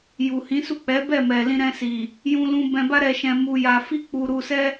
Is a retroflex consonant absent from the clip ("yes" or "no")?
yes